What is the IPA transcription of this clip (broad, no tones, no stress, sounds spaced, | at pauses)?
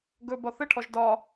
ɡ ɵ b ɒ θ ɘ ʈʰ ɔ ʒ d ɒ